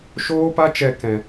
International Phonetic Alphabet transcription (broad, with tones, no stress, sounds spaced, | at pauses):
ʃ oː˦ p a˦ t͡ʃ ɛ˧ k ɛ̃˨